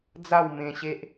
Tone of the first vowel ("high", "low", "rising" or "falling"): falling